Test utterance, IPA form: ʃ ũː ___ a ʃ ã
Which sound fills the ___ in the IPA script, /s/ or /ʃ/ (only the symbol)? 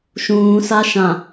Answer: s